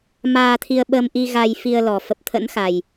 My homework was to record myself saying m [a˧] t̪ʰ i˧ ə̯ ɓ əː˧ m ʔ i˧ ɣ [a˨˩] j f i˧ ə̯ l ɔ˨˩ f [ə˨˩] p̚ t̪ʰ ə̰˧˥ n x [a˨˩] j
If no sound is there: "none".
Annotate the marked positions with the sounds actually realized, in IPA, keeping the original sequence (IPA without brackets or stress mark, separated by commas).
aː˧, a˧, ə˨˩, a˨˩